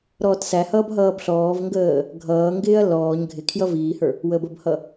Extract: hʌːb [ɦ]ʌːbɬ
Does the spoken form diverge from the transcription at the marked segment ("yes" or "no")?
no